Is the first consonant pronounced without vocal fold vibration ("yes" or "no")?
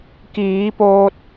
yes